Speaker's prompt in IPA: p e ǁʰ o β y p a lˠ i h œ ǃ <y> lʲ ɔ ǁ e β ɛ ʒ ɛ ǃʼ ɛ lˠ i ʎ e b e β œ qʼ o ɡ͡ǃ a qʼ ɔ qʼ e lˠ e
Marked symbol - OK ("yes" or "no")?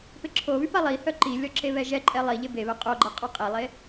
no